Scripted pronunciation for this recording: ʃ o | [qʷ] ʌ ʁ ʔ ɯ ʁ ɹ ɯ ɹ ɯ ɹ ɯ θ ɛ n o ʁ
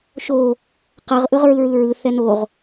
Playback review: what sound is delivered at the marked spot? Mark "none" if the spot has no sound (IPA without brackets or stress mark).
q